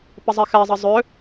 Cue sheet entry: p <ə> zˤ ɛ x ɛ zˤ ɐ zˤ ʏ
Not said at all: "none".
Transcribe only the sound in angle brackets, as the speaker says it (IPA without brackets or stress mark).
ə